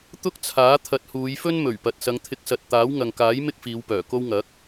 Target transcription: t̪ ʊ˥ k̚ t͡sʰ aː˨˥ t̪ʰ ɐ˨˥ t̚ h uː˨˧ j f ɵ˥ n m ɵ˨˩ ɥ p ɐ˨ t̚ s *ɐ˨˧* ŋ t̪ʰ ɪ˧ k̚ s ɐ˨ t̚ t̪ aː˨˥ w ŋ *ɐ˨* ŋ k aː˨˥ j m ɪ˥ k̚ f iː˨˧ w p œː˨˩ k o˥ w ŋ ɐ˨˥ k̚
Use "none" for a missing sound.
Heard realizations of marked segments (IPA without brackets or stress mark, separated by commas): ɐ˨˧, ɐ˨